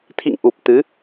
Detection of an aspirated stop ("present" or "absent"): present